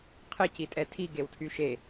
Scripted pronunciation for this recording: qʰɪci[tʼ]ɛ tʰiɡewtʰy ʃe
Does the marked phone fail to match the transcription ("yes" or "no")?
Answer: no